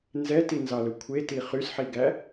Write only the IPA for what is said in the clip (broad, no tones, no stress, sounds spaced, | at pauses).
n z ɛ t i n z ɑ l ɵ kʷʰ e t i χ y s ħ i ɡ æ